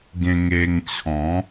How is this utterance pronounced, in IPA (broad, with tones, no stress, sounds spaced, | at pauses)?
ɡ ẽ˧ ŋ e˧ ŋ t͡ɕʰ ɔ̃˨˦